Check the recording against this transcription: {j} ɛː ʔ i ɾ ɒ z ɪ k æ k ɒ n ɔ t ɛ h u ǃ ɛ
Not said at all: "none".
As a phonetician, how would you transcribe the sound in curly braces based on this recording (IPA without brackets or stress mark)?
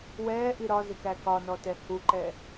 w